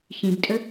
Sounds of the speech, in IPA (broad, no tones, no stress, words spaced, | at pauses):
çĩbtʼə